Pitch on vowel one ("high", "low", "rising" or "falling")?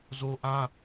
high